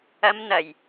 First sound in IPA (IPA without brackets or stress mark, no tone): ɐ